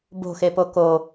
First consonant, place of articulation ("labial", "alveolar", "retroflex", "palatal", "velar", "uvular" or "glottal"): labial